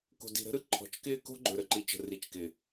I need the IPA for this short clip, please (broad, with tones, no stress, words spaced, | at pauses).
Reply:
ko̤˨di̤˨ɾə̤˦ɾɯ˦ ǃʰɔ̤˨t͡ʃkɪː˦ko̤˦ ɡ͡ǃɵ˨ɾə˨ǃi˨t͡ʃə̤˨ ri˨t͡ʃkɪ˨